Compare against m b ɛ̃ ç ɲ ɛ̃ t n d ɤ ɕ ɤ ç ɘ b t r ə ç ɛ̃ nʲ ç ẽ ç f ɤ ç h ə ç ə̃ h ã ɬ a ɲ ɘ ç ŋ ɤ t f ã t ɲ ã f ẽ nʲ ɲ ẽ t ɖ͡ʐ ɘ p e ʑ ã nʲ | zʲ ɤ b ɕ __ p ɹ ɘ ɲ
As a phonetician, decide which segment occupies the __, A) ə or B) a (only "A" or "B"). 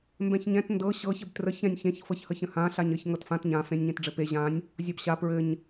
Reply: B